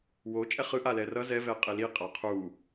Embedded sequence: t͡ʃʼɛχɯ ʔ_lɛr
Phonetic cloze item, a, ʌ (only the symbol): a